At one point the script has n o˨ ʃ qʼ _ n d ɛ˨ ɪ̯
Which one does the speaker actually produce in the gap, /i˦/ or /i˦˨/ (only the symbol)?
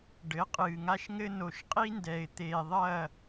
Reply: i˦